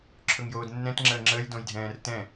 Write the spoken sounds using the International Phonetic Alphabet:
ǁʰ ɵ ŋ j oː d nː ɛ̃ t ŋ͡ǁ əː ŋ͡ǁ əː j d õ j dʱ ɛ̃ː r t ɛ̃

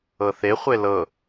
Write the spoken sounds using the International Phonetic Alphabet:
ɤ θ e χʷ e l ɤ

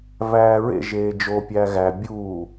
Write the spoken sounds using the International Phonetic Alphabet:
v æː ɹ ḛ ʒ eː d͡ʒ o pʲ æ ɣ æ bʲ uː

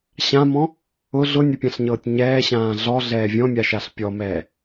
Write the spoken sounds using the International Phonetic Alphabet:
ɕ ã m ɔ̃ | ʊ ɮ ʊ nʲ ə pʲ ã ɬ ɲ ɤː tʲ ɲ ɛː ɕ ãː ɮ ɔ ɮ ɛː vʲ ɔ̃ mʲ a ʃ a ɬ pʲ ɔ m ɛː

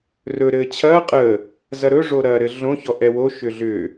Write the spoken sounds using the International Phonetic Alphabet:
r ɵ ɾ ɘː t͡ɕʰ ɐː qʼ ə | z ɐ ɾ ɵ ʐ o ɾ ɐː ɾ ɘ ɮ õ ç ɔ ʔ ɛ w o ʃ ʏ ɮ ʏ

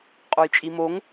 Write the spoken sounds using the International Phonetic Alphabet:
qʼ o j t͡ʃʼ i m o ŋ

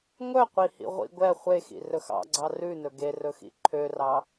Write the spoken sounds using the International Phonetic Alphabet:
ŋʷ œ qʷ i h ḭ ʁʷ ḭ ɡʷ ɛ χʷ e x ḭ r ɵ x ɑ̰ ɡ͡ǀ ɑ r ʉ n ɵ ɡ e r ɵ x ḭ ǃʰ ø r ɑ

